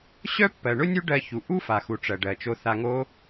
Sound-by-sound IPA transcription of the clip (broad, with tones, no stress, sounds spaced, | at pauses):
ɕ œ˦ pː ɜ˨ ɳ ʊ˦ nʲ u˦ ɖ ɜ˧ ç u˨ ʔ u˦ f a˨ x u˨ ʈ͡ʂ ɜ˨ ɖ ɜ˨ t͡ʃ o˧ θ a˧ ŋ o˦